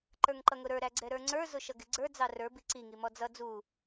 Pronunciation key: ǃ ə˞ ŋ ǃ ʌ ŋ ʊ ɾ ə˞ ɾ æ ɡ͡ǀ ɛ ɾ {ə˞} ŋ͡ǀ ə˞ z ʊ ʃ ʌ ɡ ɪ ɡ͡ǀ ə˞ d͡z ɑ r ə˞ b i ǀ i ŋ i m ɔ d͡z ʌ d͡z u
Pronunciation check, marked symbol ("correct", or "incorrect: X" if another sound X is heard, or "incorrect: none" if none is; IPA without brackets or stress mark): correct